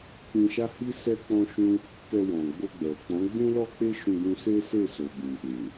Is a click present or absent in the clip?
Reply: absent